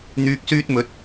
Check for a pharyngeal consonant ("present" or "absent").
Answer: absent